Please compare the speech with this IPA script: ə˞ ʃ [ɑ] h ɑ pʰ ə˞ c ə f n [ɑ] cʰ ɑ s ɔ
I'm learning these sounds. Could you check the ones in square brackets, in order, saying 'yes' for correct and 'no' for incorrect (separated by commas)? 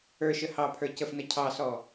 no, no